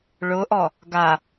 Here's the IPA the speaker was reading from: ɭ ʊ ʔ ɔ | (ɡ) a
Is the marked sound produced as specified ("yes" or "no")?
yes